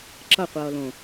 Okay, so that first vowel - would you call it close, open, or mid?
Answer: mid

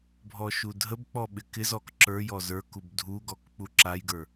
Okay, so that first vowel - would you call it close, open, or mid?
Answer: mid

